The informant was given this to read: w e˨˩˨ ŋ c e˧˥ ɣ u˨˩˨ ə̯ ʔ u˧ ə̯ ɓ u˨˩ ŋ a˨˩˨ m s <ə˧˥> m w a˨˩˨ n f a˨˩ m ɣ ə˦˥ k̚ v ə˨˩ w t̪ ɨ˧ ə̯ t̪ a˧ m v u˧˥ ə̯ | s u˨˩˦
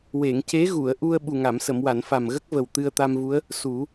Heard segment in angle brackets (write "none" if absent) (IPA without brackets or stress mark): ə˨˩˨